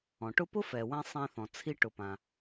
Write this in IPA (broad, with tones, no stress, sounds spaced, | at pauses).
ɔ̃˩ ʈ ʊ˥ p ʊ˥ f ɛ˩ w ɛ̃˧ sˤ ɛ̃˧ θ ɔ̃˩ t͡sʰ i˧ ʈ ʊ˩ p ã˩